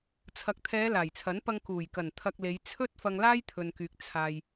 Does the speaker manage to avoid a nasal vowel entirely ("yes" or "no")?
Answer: yes